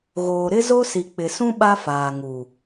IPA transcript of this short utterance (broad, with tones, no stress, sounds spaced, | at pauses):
ɣ oː˨ ɾ ɪ˦ z o˦ s i˨ k͡p ɪ˨ s ũ˦ ɓ a˦ f aː˨ ŋ u˨